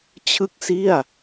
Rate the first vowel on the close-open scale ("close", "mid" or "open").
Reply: close